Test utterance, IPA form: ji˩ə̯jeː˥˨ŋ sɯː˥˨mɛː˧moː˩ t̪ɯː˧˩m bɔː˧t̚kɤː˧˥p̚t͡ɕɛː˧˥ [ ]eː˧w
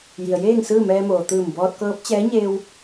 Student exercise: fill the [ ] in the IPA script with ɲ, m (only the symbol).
ɲ